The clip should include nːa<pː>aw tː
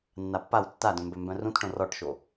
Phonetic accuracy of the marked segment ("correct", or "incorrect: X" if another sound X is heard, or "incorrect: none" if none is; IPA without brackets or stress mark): correct